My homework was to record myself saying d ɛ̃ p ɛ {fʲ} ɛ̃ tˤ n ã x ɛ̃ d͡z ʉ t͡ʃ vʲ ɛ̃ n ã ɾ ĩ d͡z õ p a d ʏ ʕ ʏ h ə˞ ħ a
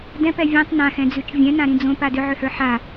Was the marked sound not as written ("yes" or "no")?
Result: yes